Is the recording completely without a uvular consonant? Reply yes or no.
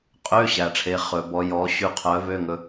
no